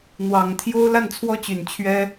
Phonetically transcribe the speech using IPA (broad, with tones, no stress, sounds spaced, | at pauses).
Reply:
n̪ w ɑ˨˩ ŋ t̪ʰ j o˥ ʊ̯ l a˥˩ n t͡sʰ w ɔ˥ t͡ɕ y˨˩ n t͡ɕʰ ɥ ɛ˥